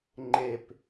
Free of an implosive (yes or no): yes